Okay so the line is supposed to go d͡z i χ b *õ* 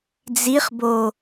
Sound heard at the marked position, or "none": o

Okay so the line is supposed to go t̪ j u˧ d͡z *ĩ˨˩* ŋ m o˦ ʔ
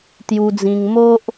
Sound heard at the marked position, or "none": ĩ˧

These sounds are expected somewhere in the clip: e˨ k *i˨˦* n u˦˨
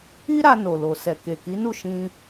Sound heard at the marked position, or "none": i˨˦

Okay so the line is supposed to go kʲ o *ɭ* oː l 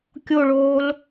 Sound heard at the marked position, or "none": ɭ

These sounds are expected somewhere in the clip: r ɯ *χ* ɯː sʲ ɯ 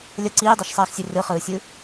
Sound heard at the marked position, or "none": χ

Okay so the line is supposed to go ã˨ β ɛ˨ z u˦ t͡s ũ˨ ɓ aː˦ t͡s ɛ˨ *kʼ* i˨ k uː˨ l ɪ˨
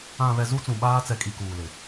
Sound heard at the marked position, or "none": kʼ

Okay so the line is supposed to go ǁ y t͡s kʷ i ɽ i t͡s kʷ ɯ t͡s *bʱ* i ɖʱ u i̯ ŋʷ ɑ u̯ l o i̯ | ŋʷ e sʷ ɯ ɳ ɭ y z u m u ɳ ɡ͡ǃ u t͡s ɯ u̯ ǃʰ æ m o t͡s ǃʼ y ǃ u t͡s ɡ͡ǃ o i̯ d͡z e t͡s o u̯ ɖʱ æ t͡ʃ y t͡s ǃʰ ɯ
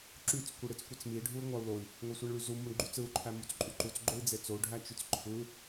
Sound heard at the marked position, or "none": m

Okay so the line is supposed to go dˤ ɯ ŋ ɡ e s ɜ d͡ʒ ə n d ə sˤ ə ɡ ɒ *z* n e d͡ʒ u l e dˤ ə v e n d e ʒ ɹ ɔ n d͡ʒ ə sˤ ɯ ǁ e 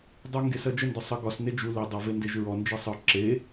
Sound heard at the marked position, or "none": s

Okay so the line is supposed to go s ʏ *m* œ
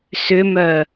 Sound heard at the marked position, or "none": m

